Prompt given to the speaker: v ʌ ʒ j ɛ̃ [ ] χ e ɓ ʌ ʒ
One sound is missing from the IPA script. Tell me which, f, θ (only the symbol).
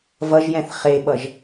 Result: θ